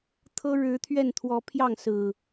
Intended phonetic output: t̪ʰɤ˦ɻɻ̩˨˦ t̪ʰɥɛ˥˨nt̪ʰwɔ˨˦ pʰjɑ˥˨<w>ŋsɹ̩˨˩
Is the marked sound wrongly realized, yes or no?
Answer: yes